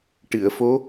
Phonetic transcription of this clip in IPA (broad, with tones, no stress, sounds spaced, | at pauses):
ʈ ɨ˨˩˨ ə̯ f o˧˥